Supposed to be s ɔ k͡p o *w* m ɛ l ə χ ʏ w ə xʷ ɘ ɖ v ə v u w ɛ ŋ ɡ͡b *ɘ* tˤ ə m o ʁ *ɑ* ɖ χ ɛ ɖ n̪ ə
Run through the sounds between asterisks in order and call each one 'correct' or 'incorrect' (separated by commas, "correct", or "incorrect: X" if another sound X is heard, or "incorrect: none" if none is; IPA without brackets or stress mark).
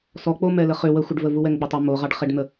incorrect: none, correct, correct